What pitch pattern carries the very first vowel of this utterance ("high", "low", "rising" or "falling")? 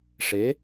rising